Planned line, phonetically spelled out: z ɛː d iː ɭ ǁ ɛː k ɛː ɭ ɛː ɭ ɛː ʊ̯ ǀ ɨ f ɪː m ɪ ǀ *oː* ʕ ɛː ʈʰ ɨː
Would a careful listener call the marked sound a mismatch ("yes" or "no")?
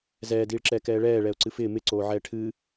no